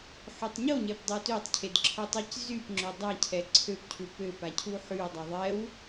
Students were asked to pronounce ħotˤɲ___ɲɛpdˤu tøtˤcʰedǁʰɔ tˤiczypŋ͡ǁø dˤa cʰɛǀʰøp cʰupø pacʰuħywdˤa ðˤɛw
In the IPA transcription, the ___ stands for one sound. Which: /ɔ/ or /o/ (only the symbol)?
o